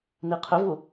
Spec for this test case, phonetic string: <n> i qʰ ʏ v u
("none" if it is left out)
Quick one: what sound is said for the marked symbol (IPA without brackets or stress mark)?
n